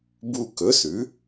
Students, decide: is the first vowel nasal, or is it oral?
oral